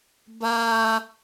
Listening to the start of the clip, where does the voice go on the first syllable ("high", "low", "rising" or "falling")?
high